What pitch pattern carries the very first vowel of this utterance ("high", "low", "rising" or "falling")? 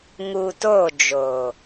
low